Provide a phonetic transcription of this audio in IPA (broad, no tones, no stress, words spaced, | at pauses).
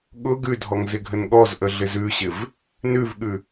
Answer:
ɠʊ ɡʉdʱɔŋzɪɡʱən ɠɔzʔəɮɪz ʉɕɪv | nʉvɠʉ